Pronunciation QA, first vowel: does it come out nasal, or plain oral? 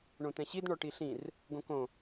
nasal